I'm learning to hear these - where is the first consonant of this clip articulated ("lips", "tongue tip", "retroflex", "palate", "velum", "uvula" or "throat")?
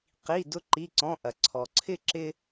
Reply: uvula